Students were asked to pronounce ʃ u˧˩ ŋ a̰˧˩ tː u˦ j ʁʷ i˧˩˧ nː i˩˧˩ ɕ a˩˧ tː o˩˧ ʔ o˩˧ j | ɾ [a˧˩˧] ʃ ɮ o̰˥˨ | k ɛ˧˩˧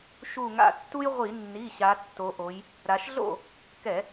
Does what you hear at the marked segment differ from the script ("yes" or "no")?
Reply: yes